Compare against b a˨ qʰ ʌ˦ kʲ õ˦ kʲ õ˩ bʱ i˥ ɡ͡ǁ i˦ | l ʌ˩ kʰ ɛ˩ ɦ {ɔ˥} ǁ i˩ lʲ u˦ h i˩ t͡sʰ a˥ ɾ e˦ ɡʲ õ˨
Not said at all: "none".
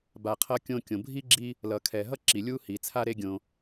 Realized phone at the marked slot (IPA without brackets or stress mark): ʌ˥